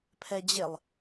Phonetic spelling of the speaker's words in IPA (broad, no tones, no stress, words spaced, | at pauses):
pʰɛd͡ʑɪlˠ